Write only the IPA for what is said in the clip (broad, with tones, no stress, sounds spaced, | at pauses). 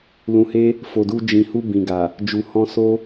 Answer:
l ũ˨ h e˧ | f o˨ d u˧ d͡ʒ ĩ˨ h u˧ b ĩ˨ ɡ a˨ | d͡ʒ u˨ h ɔ̃˧ s o˦